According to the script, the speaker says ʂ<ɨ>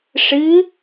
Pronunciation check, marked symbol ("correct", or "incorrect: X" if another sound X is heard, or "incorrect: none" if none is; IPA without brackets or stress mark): correct